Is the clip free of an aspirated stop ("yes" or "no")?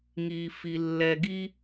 yes